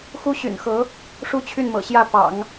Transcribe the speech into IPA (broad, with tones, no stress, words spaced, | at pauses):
xu˥ ɕy̰˨˩nxɤ˧˥ | ʂu˥t͡ɕʰy˥˩nmɤ̰˨˩ɕjä˥˩ pɑ̰˨˩˦ŋ